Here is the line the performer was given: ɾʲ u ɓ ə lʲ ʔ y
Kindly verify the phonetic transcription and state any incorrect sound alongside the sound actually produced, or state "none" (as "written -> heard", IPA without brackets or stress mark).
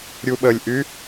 none